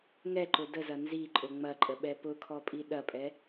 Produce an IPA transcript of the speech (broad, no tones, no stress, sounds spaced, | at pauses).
ŋ ɛ ǃ ʊ d ə z ɐ n z i ǃʼ ʊ ŋ͡m ɐ ǃʼ ə ɓ ɛ p ʊ kʰ ɔ pʼ i ɗ ɐ pʼ ɛ